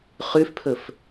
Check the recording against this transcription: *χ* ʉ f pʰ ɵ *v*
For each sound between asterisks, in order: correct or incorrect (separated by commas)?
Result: correct, incorrect